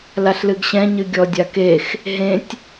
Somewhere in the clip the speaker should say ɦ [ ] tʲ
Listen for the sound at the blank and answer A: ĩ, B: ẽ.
B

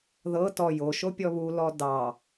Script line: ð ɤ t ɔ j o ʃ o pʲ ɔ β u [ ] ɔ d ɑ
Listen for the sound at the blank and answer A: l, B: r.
A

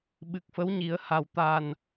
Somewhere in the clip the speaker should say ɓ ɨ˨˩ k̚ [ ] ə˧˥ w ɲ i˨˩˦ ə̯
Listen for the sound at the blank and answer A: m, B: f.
B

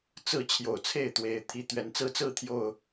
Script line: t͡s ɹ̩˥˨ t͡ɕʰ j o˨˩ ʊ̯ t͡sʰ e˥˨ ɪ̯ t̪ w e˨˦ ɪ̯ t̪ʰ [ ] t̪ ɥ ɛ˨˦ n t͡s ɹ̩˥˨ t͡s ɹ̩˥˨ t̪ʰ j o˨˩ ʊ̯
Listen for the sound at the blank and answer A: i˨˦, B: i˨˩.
B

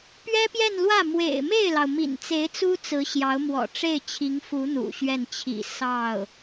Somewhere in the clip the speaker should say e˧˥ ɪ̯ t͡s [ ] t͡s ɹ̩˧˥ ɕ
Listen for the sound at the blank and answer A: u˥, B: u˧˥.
A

